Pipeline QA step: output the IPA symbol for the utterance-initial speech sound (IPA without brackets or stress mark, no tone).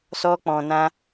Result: s